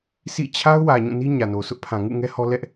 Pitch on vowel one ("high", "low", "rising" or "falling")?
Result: falling